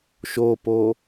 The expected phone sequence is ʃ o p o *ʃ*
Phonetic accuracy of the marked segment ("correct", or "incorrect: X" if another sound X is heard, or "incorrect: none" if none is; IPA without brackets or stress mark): incorrect: none